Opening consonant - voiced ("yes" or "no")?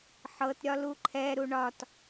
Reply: no